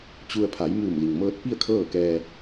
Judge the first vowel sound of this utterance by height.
high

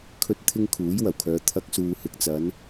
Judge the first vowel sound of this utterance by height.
mid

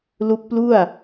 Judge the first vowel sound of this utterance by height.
high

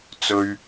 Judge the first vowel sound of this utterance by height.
mid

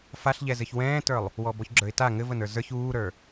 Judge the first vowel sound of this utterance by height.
low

